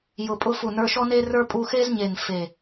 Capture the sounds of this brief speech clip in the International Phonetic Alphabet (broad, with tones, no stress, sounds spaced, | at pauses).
j ʊ˧˩ pʼ ʊ˧˥˧ f u˧˩ n ə˞˧˥˧ ʃ ɔ˥ n e˥ r ə˞˥ pʼ u˧˥˧ x e˥ z ɲ e˧˩ n f e˧˩